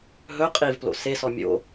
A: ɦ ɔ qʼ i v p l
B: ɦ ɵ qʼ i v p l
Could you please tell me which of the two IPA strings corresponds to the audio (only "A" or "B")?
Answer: B